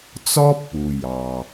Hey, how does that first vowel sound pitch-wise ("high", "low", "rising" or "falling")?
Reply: high